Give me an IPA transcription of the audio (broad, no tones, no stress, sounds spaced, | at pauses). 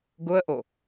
ɡ ʊ ə̯ ʔ o